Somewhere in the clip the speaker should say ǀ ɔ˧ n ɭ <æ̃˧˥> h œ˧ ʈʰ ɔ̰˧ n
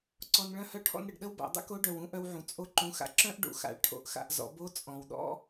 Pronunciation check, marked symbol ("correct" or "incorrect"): incorrect